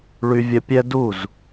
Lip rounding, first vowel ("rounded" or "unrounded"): rounded